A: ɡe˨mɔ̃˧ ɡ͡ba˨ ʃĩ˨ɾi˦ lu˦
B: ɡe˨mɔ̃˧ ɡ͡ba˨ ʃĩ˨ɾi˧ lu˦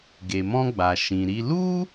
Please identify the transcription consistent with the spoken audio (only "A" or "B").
B